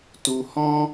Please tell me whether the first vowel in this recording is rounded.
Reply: yes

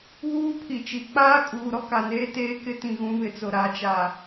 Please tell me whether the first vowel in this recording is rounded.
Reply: yes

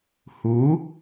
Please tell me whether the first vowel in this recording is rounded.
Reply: yes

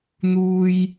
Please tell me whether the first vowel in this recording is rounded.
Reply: yes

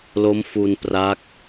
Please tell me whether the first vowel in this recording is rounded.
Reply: yes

